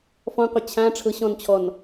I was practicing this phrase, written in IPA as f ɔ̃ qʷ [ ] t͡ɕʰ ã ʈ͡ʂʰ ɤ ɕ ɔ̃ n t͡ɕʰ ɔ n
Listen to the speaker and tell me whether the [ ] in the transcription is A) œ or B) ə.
B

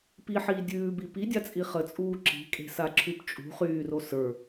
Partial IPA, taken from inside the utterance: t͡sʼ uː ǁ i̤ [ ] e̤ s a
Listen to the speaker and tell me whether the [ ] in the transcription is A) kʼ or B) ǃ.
A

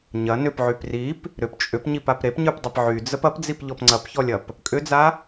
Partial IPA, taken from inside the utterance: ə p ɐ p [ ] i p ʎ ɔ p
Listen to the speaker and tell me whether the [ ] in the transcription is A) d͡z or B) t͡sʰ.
A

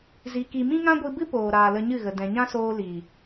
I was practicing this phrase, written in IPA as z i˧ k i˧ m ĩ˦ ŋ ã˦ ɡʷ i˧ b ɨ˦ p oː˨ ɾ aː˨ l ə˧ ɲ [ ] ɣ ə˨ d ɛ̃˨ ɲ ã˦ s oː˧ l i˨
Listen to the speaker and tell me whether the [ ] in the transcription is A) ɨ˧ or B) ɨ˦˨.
B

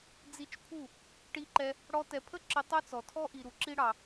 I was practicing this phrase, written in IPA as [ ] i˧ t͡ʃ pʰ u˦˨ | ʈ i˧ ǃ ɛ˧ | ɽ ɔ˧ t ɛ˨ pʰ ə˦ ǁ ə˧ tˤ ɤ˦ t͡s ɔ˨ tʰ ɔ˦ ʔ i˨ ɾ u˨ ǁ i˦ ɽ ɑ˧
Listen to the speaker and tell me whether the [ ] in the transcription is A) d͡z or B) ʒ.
A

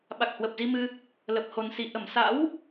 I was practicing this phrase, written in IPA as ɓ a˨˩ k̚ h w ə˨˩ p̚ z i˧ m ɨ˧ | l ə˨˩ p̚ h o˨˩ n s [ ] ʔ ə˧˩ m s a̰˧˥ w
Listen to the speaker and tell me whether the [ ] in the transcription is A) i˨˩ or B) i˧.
A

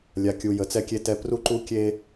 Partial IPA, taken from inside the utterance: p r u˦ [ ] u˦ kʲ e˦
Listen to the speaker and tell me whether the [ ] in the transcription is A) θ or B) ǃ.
B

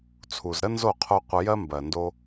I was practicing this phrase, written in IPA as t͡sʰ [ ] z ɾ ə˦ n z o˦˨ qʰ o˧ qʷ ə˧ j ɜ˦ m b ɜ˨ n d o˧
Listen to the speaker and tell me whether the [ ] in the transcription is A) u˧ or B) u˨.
B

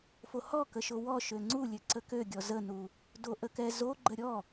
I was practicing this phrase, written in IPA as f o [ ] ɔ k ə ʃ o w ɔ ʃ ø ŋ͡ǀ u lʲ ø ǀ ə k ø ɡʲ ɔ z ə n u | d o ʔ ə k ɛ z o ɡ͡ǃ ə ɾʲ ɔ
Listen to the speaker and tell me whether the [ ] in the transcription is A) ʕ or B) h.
B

